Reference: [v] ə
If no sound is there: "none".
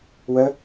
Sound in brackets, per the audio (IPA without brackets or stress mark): w